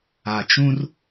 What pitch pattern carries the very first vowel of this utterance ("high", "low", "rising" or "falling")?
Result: low